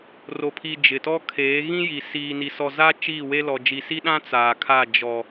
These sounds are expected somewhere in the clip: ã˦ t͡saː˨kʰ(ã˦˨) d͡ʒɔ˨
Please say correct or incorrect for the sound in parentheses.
incorrect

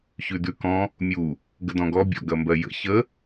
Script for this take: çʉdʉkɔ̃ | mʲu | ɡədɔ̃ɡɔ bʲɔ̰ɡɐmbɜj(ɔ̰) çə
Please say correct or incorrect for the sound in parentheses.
incorrect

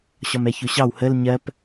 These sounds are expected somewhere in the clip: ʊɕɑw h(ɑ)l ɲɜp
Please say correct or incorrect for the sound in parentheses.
incorrect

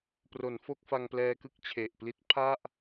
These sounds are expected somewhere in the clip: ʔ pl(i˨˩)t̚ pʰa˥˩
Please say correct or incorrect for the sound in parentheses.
incorrect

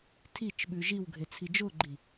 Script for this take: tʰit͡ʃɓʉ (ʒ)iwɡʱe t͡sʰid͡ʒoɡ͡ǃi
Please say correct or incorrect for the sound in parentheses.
correct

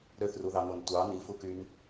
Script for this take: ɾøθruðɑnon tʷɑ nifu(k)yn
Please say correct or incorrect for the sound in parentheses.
correct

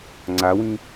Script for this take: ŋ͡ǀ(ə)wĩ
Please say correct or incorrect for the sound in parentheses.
incorrect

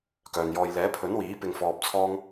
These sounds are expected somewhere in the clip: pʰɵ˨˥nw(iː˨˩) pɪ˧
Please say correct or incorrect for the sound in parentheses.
incorrect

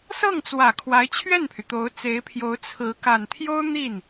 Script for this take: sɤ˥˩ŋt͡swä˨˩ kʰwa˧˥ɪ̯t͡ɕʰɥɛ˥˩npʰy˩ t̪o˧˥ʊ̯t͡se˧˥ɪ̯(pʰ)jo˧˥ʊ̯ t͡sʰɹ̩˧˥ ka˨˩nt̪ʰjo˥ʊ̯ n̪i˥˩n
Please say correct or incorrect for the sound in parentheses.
correct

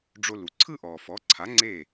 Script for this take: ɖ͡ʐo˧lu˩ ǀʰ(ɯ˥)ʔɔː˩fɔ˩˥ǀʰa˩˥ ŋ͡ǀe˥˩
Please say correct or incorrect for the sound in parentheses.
correct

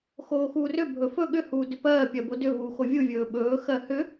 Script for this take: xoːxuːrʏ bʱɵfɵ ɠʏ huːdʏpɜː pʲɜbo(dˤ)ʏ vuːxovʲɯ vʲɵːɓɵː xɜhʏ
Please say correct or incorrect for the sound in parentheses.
incorrect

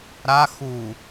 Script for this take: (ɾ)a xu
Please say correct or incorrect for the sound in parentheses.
correct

